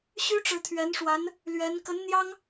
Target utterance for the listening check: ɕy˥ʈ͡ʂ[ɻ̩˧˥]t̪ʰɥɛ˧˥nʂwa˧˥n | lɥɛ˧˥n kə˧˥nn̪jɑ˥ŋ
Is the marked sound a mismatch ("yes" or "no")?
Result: no